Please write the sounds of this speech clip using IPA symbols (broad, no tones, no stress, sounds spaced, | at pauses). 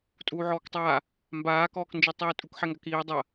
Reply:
tʼ uː ʕ ɔː k tˤ aː | m b aː k ɔː k n d͡ʒ i tˤ iː tʼ u k ħ ɛ ŋ ɡ a k iː dˤ ɐ